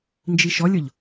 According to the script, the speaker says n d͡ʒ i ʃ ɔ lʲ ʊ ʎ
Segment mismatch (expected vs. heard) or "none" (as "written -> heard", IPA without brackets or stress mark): none